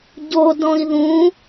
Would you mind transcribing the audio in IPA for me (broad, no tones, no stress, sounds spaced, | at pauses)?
ɟ o d ɔ̃ i̯ ð ũ